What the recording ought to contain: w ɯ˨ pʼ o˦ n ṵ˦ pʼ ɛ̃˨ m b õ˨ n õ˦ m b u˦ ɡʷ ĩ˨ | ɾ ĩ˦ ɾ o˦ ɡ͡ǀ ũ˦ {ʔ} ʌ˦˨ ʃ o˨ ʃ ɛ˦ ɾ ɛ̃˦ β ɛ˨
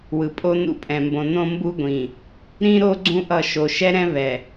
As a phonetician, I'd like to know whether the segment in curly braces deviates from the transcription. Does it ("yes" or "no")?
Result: no